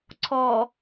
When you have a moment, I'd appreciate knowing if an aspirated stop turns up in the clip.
yes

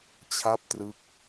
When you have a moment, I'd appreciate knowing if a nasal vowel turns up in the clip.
no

